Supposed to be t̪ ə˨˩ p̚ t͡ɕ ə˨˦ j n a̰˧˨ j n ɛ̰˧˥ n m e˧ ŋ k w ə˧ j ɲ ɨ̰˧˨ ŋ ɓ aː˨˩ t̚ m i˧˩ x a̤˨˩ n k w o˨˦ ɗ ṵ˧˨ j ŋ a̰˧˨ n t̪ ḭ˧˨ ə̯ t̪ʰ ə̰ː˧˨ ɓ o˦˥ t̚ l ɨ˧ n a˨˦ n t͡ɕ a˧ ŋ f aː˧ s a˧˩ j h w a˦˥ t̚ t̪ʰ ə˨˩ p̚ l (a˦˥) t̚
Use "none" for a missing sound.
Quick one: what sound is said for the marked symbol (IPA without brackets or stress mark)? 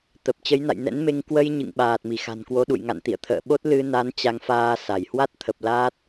aː˦˥